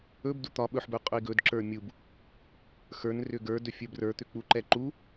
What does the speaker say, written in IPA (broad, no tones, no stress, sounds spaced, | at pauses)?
ɵ b d u t̪ ɒ ɓ ɵ ħ b ɵ qʼ ɵ i̯ ɡ ɵ d ǁ ə˞ mʲ u b | x ə˞ n r ʏ ɡ ə˞ d ɵ fʲ ə˞ b r ə˞ t̪ ʏ k͡p u ǃ ɛ ǃ u